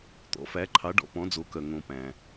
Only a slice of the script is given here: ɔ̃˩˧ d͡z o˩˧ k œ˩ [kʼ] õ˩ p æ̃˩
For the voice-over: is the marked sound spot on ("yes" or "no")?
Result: no